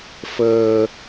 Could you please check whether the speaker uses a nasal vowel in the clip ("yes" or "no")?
no